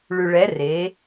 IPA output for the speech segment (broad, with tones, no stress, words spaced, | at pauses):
ɭʉ˩ɭɛ˩˧ re˩˧